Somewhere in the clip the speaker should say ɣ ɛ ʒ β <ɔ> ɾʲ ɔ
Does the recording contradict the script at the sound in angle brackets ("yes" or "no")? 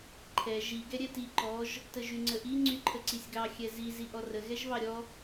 yes